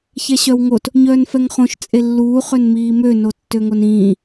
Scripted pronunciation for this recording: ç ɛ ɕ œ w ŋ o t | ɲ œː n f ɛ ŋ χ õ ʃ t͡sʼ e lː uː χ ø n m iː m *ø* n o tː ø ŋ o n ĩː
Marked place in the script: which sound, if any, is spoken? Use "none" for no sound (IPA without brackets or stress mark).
ø